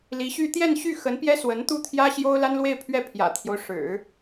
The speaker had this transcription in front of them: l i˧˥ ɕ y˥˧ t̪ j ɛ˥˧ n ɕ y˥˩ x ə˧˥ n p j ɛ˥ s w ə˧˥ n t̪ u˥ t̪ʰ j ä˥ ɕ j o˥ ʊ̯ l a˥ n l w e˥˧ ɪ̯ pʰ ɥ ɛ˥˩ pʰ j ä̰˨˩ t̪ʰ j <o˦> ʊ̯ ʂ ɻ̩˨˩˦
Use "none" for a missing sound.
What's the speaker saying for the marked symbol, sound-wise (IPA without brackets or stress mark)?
o˦